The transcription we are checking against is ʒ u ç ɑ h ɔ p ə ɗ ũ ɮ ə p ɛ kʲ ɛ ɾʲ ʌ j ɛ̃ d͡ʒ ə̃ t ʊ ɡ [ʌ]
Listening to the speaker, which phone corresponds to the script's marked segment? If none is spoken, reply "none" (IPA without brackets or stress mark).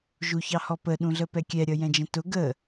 ə